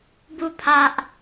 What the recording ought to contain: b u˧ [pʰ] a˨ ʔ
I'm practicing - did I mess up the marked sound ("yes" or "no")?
no